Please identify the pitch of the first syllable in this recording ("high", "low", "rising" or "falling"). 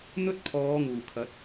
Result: high